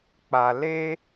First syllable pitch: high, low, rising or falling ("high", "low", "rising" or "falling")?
low